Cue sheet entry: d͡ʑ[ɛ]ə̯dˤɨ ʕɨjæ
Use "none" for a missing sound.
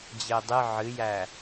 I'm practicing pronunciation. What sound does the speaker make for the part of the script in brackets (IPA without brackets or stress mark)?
ɪ